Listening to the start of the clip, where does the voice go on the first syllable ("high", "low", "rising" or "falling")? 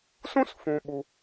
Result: high